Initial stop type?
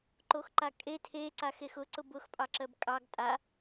click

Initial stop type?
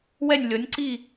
click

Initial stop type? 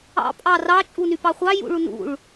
ejective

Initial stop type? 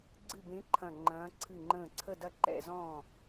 click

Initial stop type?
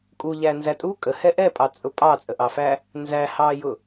ejective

